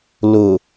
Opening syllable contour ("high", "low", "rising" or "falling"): low